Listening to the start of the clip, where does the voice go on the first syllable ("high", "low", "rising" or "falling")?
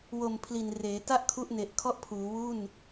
low